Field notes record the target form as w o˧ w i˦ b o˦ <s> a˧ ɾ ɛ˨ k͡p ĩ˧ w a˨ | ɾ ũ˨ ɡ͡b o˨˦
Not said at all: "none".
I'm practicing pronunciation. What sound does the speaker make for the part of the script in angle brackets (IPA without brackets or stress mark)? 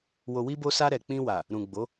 s